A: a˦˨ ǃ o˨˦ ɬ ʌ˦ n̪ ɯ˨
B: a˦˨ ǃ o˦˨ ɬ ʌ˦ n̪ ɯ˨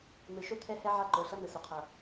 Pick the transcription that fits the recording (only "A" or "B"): A